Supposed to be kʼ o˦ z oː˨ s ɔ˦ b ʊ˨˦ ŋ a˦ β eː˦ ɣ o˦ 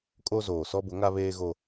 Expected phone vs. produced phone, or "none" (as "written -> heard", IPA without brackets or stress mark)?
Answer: none